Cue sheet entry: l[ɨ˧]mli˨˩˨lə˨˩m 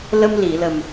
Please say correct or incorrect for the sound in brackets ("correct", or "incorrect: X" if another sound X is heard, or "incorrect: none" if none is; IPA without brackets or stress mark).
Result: incorrect: ə˧